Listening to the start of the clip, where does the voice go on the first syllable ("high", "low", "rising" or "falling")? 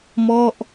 falling